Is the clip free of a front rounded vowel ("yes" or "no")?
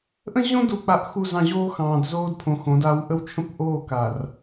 yes